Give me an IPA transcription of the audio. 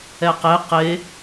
ɛ q e q e

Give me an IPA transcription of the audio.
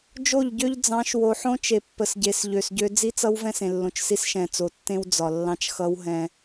d͡ʒ o˦˨ ʎ ɟ ø˦ ʎ d͡z ɑ̃˨˦ ʃ w o˨ ħ õ˦ t͡ʃ e˨ pː ə˨ s ɟ e˨ s ʎ ø˨ s ɟ ø˦ d͡z i˦ t͡s ʌ˦ w v ɛ̃˦ s ẽ˨ lː õ˨ t͡ʃ s i˦ s ʃ ɛ̃˨ t͡s o˨ tː ẽ˦ w d͡z ɒ˨ lː ɑ̃˦ t͡ʃ x ʌ˦ w ɦ ɛ̃˦

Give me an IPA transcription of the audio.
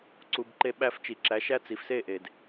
ǀ u˧ b ǃ e˦ ɓ æ˧ f t͡ʃ i˨ ǁ æ˨˦ ʃ æ˦ t͡s i˨ f s e˦˨ ʔ e˨ d

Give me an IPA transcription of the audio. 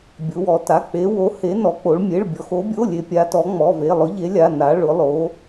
bʲ ʊ˧˥ w ɔ˧˥ t a˧˥˧ k͡p e˧˥ w o˧˥ h e˧˥ n ɔ˧˥ k͡p o˧˥ ɭ mʲ e˧˥˧ ɭ bʲ ɔ˧˥ x o˧˥ bʲ o˧˥˧ lʲ e˧˥ pʲ a˧˥ t ɔ˧˥ ŋ͡m ɔ˧˥˧ v e˧˥˧ lˠ ʊ˧˥ ʎ e˧˥ lʲ a˧˥˧ n a˧˥ ɭ ʊ˧˥ lˠ o˧˥

